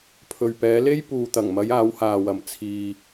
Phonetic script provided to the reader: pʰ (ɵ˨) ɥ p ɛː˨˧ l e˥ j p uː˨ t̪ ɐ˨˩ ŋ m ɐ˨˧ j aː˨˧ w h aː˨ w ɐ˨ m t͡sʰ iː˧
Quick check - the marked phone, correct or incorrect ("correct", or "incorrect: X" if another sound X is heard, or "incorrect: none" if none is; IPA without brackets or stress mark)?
correct